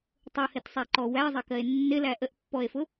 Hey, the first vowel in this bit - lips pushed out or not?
yes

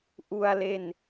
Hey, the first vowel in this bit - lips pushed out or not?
yes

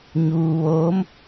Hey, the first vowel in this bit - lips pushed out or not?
yes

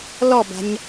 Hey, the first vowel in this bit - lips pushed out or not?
yes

